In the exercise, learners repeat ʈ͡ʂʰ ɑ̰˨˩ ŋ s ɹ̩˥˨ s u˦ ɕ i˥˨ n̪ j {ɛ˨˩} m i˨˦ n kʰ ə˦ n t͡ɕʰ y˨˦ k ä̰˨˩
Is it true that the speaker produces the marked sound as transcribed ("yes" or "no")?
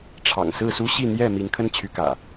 no